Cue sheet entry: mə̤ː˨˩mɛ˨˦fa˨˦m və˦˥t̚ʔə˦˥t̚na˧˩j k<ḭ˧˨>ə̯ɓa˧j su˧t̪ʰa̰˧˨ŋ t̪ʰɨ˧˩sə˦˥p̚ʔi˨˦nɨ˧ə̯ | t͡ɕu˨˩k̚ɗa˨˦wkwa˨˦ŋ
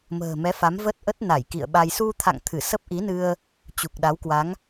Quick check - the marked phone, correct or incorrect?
correct